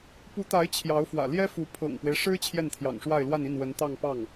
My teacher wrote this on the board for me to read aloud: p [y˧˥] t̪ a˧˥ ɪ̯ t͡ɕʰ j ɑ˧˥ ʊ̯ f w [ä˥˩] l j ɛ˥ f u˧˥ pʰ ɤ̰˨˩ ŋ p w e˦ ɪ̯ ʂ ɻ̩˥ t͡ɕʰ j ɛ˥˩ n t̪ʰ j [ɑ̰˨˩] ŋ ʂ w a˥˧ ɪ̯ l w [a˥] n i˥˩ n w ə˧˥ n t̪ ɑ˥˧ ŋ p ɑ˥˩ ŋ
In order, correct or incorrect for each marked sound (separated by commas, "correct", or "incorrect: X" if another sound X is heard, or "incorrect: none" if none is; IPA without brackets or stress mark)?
incorrect: u˧˥, incorrect: ä̰˨˩, correct, incorrect: a˥˧